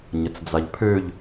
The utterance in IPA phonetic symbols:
ɲ ə t͡s d͡z a ʎ pʰ ø ʎ

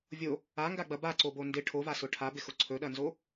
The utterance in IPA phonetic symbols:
vʲ o | a ŋ ɡ a ɡ͡b ɐ b a ǀ o b o n d ɪ ʈʰ o v a s ʊ ʈʰ a b ɪ x ʊ ǀʰ ɵ ɗ ɐ n z o

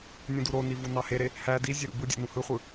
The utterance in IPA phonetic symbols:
nʲ ũ d u ɾ o n i v u n ɑ h e ɾ e | h æ d i zʲ ø ɾ ṵ b ɯ dʲ ḛ n ũ h ɯ χʷ ɯ

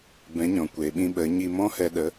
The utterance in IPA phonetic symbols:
b ɛ̃˨˦ ɲ ɔ̃˨ kʷ eː˨ ɓ ĩ˧ ɓ ə˨˦ ɲ i˧ m ɔ̃˦ h ɛ˧ ɗ ə˨˦

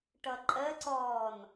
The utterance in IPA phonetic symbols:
ʈ ʌ ǃʼ ɜ ǀ ɔː n

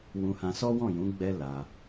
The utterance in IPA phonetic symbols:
w ũ˧ h ã˧ s ɔ˦ w ɔ̃˦˨ j ũ˨˦ ɡ͡b ɛ˦ l a˧

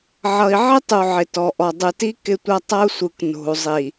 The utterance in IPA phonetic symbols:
ʕ ʌ˨ i̯ ʕ ɪ˦ tˤ u˨ ʕ ɪ˨ t ɔ˨ ʔ ɔ˨ dˤ ɯ˨ t i˦ k ɪ˦ tʷ ʌ˦ tˤ ʌ˦ u̯ sʷ ɯ˨ k n o̤˨ u̯ zˤ i˨

